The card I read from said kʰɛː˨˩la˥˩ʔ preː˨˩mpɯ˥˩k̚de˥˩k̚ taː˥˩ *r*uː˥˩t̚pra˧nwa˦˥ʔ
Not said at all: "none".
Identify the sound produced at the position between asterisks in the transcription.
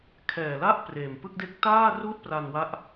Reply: r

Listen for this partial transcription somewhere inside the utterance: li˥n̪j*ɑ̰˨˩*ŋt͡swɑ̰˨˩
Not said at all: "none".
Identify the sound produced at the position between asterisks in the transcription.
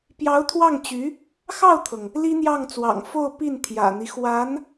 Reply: ɑ˥˩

